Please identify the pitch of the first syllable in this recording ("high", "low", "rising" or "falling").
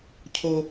high